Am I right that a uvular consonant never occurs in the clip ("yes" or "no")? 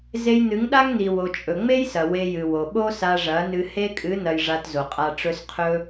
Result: no